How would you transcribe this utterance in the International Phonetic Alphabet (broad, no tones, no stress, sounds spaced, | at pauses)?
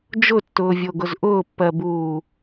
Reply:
d͡ʒ ʊ tː ʊː vʲ o ɡ ʊ z ʔ ʊː pː ɜ b uː